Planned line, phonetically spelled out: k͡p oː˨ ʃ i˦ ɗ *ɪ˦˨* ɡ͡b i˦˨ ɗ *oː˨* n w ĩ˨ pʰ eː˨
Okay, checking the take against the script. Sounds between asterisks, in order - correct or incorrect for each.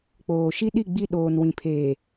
incorrect: i˦˨, correct

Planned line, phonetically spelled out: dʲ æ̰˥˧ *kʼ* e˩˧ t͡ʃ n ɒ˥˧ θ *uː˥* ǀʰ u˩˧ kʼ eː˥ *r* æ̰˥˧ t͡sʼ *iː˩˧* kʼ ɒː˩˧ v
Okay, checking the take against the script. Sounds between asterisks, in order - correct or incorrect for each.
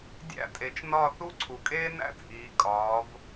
incorrect: tʼ, incorrect: u˥, incorrect: n, correct

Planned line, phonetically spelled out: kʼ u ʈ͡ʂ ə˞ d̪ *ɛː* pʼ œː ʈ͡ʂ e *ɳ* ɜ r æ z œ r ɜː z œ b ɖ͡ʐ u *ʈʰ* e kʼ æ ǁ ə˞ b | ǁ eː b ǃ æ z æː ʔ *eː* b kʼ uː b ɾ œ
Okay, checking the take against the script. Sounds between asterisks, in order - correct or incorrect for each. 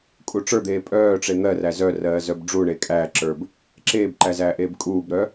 incorrect: eː, incorrect: n̪, incorrect: ɳ, correct

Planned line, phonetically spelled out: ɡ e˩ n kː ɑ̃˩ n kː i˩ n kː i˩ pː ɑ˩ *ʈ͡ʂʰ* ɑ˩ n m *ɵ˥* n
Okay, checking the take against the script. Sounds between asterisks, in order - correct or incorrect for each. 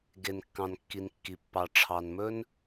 correct, correct

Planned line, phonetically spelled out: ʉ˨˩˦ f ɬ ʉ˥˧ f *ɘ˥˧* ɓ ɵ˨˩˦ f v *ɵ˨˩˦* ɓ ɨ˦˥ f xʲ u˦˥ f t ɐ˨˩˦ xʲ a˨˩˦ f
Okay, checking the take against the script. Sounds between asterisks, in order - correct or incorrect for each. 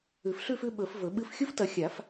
incorrect: ʉ˥˧, correct

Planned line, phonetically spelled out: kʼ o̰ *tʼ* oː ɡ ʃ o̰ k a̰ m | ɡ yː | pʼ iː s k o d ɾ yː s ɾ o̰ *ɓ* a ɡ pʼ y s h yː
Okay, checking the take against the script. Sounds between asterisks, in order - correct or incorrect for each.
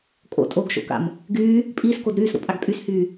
correct, incorrect: pʼ

